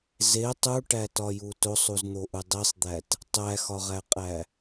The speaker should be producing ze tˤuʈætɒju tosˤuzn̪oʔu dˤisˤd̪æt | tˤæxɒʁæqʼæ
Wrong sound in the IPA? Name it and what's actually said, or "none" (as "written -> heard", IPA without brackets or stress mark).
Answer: none